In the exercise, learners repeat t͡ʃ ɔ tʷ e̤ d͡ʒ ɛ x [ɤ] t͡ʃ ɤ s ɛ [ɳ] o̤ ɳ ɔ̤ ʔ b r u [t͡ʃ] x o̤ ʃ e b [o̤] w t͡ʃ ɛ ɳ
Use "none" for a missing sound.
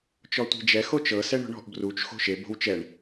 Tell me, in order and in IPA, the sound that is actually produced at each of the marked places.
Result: o, ɳ, t͡ʃ, o̤

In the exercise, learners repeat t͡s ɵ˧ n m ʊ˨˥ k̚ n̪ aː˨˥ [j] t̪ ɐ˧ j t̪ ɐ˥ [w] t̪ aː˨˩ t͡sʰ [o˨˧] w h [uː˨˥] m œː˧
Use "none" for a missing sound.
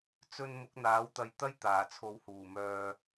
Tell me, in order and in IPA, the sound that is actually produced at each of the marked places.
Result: w, j, o˨˧, uː˨˩

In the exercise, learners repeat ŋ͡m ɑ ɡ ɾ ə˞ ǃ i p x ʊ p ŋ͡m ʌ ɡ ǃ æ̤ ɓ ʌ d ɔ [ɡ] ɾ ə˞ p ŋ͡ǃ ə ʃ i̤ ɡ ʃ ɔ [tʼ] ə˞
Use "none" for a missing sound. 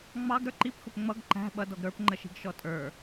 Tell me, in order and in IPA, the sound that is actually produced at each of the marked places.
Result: ɡ, tʼ

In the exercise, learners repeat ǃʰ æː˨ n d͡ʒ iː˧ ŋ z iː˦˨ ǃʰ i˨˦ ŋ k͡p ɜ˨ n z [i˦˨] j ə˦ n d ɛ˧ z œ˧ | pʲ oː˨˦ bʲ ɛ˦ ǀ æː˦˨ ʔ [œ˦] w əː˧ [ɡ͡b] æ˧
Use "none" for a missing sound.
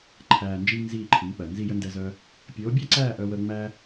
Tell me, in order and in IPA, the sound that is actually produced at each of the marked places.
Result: i˦˨, œ˧, ŋ͡m

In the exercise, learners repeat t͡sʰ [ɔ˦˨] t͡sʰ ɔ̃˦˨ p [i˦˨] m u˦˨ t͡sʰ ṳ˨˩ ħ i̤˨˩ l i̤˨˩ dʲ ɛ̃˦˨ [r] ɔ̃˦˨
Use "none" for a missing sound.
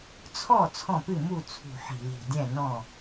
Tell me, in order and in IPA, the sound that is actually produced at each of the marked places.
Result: ɔ˦˨, ɨ˦˨, n

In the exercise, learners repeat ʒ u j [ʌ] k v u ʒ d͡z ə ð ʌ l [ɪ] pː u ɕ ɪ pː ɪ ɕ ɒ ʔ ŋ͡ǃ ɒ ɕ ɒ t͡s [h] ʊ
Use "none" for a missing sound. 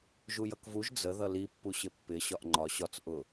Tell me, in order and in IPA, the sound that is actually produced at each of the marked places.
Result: ʌ, i, ʔ

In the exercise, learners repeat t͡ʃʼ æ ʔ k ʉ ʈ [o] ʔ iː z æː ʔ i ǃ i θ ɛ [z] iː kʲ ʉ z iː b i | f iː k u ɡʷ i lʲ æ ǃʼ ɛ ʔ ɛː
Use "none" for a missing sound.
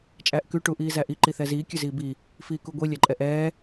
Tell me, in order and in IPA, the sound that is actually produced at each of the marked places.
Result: u, z

